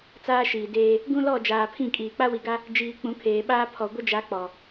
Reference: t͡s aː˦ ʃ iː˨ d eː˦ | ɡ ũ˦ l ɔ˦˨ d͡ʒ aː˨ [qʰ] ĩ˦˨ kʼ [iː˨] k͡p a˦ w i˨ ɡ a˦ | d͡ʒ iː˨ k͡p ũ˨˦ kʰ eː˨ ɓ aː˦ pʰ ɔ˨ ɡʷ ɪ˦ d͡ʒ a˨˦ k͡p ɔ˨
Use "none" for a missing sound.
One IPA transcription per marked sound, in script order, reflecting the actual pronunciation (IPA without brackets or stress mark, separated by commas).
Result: pʰ, iː˨